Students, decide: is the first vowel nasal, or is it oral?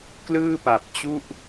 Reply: oral